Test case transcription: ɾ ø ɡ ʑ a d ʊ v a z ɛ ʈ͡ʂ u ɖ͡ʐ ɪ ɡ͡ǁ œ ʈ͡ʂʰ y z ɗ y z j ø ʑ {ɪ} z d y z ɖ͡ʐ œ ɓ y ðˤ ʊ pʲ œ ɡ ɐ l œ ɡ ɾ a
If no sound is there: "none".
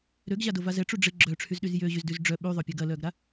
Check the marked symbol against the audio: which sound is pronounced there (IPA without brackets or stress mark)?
y